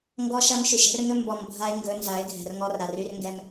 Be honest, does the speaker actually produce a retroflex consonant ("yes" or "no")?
no